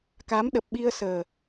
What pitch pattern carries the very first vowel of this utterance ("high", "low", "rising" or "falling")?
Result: rising